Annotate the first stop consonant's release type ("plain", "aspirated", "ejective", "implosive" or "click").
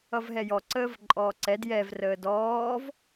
click